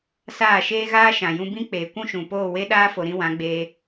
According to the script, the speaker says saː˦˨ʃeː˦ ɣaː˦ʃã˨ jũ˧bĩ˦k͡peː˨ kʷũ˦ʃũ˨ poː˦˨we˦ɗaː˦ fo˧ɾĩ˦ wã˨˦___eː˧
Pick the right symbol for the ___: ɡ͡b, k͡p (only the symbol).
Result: ɡ͡b